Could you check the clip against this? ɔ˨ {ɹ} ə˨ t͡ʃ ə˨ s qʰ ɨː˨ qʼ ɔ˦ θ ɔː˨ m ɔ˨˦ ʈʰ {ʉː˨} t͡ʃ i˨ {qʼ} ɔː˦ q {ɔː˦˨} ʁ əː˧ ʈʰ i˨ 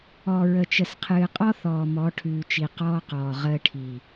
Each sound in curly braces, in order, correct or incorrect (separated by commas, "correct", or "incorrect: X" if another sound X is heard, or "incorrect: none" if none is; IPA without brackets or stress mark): correct, correct, incorrect: q, incorrect: ɔː˨